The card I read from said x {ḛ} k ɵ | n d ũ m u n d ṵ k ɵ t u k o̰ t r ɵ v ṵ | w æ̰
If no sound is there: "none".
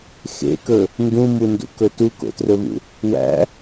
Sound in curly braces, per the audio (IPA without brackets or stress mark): ḛ